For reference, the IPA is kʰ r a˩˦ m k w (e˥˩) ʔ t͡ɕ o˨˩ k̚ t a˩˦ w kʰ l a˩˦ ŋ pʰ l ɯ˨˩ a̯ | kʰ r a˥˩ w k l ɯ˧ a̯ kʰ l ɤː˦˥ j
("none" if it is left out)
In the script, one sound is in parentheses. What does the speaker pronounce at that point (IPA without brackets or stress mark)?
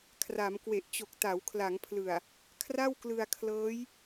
e˨˩